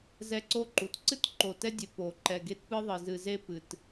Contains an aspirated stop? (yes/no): no